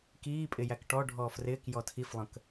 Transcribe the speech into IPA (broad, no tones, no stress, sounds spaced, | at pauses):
k iː pʼ ɪ j æ k ʈ ɔ ɖʱ ɔː f r ɪː k j ɔ tʰ i f lˠ ə̃ k